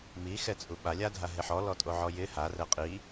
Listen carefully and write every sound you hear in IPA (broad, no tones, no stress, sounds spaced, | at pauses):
m i x ɛ t͡sʼ u ɓ a lʲ a dʱ a ɦ e ħ ɔ l ɔ tʼ o ʕ ɔ j ɪ h a r ɛ qʼ i